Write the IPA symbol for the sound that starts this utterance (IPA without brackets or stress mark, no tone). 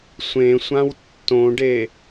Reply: sʷ